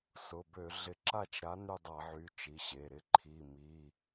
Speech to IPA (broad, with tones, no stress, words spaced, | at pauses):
sʊ˩˧˩bø˧˩˧ ɮɪ˨˥ǁa˦˨t͡ʃɾa˨˥ ny˦˨dˤa˧˩˧ʕy˩˧˩ t͡ʃi˩˧˩ɕe˩˧˩ɾɪ˦˨ ǃʰi˩˧˩mi˩˧˩